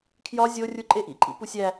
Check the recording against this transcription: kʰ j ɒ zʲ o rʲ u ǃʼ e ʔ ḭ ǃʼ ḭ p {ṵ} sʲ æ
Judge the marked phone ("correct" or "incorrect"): incorrect